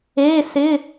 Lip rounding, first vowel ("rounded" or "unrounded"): unrounded